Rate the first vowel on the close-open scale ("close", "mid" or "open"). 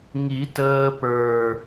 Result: close